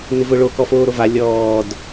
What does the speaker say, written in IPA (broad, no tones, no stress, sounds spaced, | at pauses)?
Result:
n ɪ v ʊ ɭ o k ɔ f oː ɾ o v a lʲ ɔː d